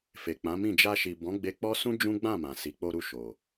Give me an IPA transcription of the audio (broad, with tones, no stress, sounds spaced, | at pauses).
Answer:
f e˨ k͡p ã˨˦ m ĩ˦˨ d͡ʒ a˧ ʃ i˨ b ɔ̃˨˦ ɡ͡b e˧ k͡p ɔ˦ s ũ˦ d͡ʒ ũ˦ ɡ͡b ã˦˨ m ã˨ s i˨˦ k͡p o˧ ɾ u˧ ʃ o˨